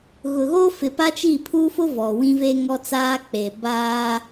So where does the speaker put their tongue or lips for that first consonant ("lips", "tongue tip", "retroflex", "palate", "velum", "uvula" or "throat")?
velum